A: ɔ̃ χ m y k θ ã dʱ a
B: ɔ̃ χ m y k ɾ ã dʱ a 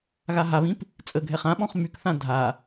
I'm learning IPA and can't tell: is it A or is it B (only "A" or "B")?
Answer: A